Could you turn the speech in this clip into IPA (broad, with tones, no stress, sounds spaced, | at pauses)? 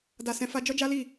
d a˧ s ɛ̃˧ f a˦ d͡ʒ ɔ˦ d͡ʒ a˦ l i˦˨